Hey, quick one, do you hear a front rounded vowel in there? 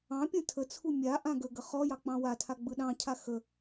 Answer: no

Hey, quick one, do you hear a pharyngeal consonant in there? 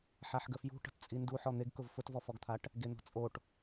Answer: yes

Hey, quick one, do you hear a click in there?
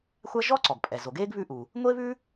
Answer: yes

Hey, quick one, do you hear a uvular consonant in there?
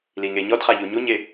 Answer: yes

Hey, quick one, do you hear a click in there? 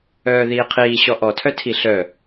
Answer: no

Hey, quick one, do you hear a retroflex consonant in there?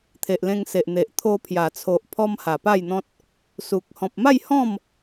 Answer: no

